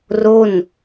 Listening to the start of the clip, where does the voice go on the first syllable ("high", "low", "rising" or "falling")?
falling